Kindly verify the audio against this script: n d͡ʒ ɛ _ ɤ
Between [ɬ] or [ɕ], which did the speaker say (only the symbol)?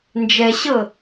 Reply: ɕ